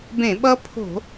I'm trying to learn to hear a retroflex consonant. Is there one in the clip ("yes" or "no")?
no